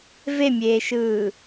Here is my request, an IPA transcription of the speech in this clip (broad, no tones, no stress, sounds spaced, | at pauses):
v e mʲ eː ʃ ɯː